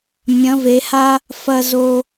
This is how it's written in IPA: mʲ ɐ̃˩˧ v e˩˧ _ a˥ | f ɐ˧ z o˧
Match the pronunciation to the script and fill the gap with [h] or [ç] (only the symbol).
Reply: h